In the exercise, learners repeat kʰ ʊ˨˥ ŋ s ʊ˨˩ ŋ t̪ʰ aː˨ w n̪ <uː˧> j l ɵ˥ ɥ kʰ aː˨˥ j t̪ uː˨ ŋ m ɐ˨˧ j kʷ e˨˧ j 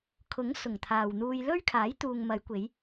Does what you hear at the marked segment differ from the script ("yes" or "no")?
no